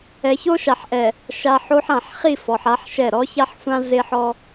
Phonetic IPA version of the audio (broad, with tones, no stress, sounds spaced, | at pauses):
ɛ˨ ç o˦ ʃ a˨ ħ ʔ ɛ˨ | ʃ a˨ ħ o˦ ħ ã˨ ħ χ i˦˨ f ɔ˨ ħ a˦ ħ ʃ ɛ˦˨ ɾ ɔ˦ ç a˦ ħ sʷ ã˦ z e˦ ħ ɔ˦